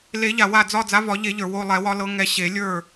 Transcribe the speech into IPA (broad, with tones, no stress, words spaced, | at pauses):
le˨˩˦ʎa˩ wa˥˩d͡zɒ˥˧ d͡za˨˦vɒ˨˩˦ʎe˨˩˦ʎə˞˩ wo˥˧ lˠɛ˨˩˦wɒ˨˦lɤ˨˦ ŋɛ˨˦ɕe˨˩˦lʲə˞˥˩